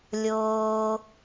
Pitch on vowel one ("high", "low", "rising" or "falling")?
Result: low